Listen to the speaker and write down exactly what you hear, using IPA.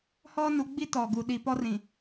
h ɔ˦ n u˨˦ ɡ͡b i˦ t ɔ˨ ɡ u˨ ɗ i˨ p ɔ˦ r ĩ˨

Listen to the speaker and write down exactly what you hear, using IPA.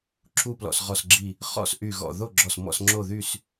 ǁʰ u˥˨ p l ɔ̰˧˩ s ʁ ɔ˧˩ s ɡ͡ǁ i˧˩ | χ ɔ̰˥˨ s ʔ y˧˩ ɣ ɔ̰˧˩ ð o˥˨ ɡ͡ǁ ɔ˧˩ s m ɔ̰˥˨ s ŋ͡ǁ o˥˨ ð y˥˨ s

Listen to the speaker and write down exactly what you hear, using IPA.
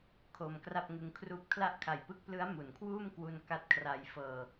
kʰ o˧ m k r a˥˩ p̚ ŋ ɯ˧ ŋ kʰ r uː˥˩ p̚ kʰ l a˦˥ ʔ kʰ a˨˩ j p ɯ˦˥ k̚ p l ɯ˦˥ a̯ m u˩˦ n kʰ w uː˥˩ m k w u˧ n k a˦˥ t̚ kʰ r a˧ j f ɤː˧

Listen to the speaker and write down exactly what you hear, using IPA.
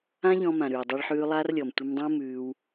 ã˦ ʎ ɔ̃˧ m ã˨ ɾ ʉː˨ dˤ œ˧ ɭ ħ ʉː˧ lˠ a˦ r lʲ ɔ˨ m tʷ ɘ˧ m dˤ õ˦ m ʉː˧ w

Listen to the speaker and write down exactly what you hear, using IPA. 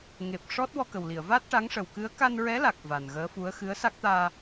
ŋ e˨˩ p̚ ʂ ɔ˦˥ t̚ w ɔ˧ k ə˨˩ w l i˨˩˨ ə̯ v a˦˥ t̚ ʈ a˧˥ ŋ ʂ ə˨˩ w k ɨ˧˥ ə̯ k a˧ n ɹ ɛ˧˥ l a˨˩ k̚ v a˨˩ n ɣ əː˧˥ f u˧˥ ə̯ x ɨ˧˥ ə̯ s a˦˥ k̚ t̪ aː˧

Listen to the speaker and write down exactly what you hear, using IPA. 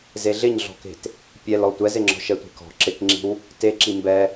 z e ɮ ɪ ɲ ɮ ɔ̤ k e̤ t | pʲ ɛ l ɔ tʷ ɛ z e ŋ͡ǁ ɔ̤ ʃ ɛ tʷ e̤ k ɔ̤ ǁ ɪ k ŋ͡ǁ i̤ w | t e ǁ i m b ɛ

